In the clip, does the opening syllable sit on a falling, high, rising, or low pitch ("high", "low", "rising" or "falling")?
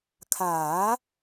rising